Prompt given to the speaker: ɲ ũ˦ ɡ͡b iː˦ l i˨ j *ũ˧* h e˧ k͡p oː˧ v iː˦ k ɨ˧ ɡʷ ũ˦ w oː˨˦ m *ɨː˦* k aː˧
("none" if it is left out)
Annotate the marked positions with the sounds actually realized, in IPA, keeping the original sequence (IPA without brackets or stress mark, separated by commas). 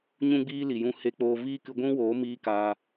ũ˧, iː˦